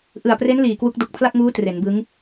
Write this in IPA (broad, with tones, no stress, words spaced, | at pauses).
ʔɯ˨˩a̯pre˦˥n liː˨˩kwu˦˥k̚ do˨˩k̚pʰla˥˩k̚ŋuː˦˥ tre˩˦nbɯ˦˥ŋ